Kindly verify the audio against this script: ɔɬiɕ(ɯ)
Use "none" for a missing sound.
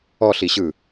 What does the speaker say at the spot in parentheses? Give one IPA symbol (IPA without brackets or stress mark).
ɯ